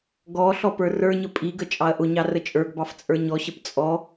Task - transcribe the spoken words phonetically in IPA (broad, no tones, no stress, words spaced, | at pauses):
ɡɔ ɬɔpə˞rə˞ɲə pʼiɡə t͡ʃʼɑɐ̯ʔʊɲɑ rət͡ʃʼə˞ɡbɑf t͡sʼə˞ɲɔɕəp t͡sʼɔ